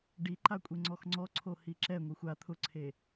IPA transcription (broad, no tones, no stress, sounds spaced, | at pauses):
ɖ i ǃ a kʷʼ e ŋ͡ǀ ɔ x ŋ͡ǀ ɔ ǀʰ o h i ǁ ɛ ŋʷ i xʷ a t̪ʰ ʊ ǀʰ e